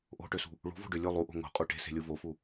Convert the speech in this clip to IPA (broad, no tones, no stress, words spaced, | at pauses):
ʔo̤ʈøsṳ | ɭṳvo̤ ɖølʲu lˠuʔo̤ ŋo̤ qʼuʈe̤ se̤lʲuvofu